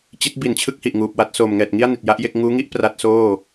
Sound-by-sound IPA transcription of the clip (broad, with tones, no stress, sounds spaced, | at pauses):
t͡ɕ i˦˥ t̚ b i˨˩ n t͡ɕʰ ɯ˥˩ k̚ h i˨˩ ʔ ŋ uː˨˩ p̚ w a˥˩ t̚ s oː˨˩ m ŋ ɛː˨˩ t̚ ŋ i˥˩ a̯ n i˨˩ t̚ j a˥˩ ʔ j e˥˩ k̚ ŋ uː˦˥ ŋ i˥˩ ʔ p r a˦˥ t̚ s oː˥˩